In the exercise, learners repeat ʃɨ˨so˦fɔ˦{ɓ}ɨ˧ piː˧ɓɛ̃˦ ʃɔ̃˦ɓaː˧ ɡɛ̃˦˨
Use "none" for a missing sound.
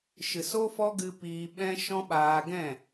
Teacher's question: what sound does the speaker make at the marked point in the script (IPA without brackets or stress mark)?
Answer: ɡ